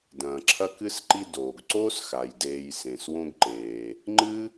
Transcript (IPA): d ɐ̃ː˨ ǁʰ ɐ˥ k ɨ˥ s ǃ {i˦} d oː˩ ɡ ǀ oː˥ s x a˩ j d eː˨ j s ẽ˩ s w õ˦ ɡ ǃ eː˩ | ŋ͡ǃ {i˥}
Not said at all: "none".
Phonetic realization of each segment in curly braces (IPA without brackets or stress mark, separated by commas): i˦, ɨ˥